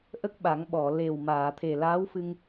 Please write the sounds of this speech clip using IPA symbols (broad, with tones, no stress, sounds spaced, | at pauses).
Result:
ʔ ə˦˥ k̚ ɓ a˨˩˦ ŋ ɓ ɔ˨˩˨ l e˨˩ w m aː˨˩˨ t̪ʰ e˨˩ l aː˧˥ w f ɨ˧ ŋ